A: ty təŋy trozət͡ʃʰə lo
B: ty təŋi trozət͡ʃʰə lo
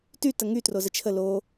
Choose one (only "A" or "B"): A